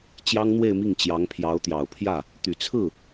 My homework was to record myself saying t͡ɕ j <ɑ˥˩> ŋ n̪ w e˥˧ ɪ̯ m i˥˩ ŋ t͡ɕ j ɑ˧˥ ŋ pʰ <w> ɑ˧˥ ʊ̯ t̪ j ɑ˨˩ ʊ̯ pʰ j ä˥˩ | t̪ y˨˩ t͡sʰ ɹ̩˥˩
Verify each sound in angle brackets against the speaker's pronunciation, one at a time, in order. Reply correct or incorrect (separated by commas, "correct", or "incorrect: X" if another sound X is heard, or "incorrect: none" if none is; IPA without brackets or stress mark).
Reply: incorrect: ɑ˥, incorrect: j